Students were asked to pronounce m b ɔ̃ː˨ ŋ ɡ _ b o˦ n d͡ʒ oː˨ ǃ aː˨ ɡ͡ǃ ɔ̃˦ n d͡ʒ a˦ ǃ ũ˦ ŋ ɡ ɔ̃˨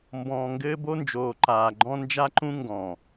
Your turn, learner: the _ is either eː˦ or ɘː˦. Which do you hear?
ɘː˦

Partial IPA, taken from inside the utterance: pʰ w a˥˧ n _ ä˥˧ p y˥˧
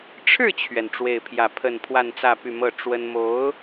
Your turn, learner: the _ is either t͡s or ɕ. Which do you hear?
t͡s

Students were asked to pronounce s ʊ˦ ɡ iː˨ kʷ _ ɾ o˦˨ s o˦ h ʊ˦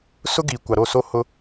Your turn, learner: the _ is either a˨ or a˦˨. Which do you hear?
a˨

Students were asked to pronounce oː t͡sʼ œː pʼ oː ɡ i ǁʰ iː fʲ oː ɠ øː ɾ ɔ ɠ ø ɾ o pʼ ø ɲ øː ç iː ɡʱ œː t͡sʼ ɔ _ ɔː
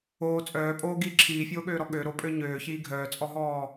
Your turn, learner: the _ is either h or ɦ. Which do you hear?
ɦ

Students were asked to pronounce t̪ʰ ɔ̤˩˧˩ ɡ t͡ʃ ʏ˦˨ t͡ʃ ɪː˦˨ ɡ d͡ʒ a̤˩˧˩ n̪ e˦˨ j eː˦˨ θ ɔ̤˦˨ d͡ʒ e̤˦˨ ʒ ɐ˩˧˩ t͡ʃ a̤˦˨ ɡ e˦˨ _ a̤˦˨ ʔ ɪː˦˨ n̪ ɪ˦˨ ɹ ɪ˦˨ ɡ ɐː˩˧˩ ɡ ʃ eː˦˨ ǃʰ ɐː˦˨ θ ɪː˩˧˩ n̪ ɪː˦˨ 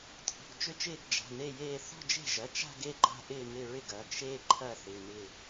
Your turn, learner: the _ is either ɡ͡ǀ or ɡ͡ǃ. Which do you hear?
ɡ͡ǃ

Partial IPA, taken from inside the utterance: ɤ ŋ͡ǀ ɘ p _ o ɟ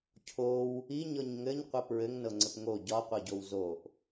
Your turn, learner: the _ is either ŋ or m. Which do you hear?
ŋ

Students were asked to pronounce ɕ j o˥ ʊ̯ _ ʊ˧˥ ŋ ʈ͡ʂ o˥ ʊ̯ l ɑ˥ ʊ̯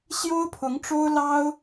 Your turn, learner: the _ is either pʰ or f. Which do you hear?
pʰ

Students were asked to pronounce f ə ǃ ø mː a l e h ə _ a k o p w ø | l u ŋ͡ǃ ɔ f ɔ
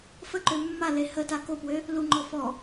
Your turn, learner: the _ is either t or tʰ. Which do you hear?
t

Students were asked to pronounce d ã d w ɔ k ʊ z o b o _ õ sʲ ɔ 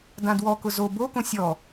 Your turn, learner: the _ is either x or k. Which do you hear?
k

